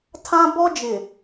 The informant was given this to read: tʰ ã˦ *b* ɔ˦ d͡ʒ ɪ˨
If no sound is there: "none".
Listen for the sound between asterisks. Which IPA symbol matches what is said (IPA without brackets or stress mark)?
b